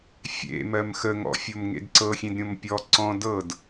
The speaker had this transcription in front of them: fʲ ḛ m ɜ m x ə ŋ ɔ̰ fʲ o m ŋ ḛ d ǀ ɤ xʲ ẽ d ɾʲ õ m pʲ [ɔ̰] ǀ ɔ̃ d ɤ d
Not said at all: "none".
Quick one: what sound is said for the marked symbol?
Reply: ɔ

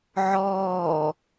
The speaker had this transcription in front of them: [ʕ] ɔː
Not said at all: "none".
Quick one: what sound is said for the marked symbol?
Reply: ʕ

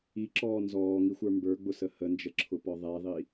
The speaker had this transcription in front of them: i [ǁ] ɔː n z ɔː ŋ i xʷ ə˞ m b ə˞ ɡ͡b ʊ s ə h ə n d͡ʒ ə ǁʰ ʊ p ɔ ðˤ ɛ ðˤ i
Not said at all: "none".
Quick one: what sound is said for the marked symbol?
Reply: ǁ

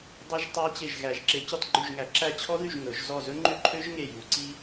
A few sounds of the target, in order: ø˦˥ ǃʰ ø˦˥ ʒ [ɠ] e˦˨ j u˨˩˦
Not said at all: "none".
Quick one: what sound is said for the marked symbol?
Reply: ŋ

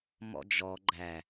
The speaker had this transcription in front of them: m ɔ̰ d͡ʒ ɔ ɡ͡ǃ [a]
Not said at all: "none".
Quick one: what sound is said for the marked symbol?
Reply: æ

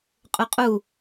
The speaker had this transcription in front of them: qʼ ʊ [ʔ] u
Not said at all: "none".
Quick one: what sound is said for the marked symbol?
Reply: qʼ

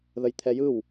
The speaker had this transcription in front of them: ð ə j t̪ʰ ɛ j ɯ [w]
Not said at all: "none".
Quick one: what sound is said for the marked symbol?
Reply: w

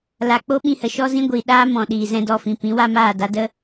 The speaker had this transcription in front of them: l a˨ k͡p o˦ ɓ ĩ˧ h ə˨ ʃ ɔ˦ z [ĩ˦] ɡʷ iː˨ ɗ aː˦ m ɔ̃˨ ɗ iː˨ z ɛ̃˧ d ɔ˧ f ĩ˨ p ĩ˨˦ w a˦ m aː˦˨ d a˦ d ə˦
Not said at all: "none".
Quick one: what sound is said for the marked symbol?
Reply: ĩ˦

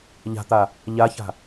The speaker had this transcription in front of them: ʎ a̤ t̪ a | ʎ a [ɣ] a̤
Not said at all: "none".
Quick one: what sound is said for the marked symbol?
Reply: ç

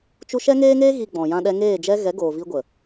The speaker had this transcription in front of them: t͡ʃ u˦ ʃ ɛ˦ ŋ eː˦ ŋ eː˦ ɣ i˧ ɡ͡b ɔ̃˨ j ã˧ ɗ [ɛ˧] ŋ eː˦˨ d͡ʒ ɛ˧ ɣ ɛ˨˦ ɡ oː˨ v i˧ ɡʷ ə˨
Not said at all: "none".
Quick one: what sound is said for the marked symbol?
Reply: ɛ˧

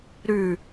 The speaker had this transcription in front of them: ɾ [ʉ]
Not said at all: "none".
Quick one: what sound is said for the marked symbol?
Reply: ʉ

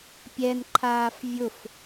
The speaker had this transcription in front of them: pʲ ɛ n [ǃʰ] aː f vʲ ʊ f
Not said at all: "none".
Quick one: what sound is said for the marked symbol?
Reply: ǃʰ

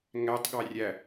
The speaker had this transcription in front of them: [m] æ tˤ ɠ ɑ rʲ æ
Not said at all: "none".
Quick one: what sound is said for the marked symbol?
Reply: ŋ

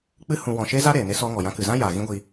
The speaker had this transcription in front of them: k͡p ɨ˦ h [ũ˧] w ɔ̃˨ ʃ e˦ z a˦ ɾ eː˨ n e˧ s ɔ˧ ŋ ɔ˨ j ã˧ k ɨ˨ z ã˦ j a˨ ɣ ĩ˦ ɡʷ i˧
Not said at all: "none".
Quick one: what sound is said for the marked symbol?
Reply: ũ˧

